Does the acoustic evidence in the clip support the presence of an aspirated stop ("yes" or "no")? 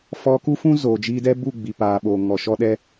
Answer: no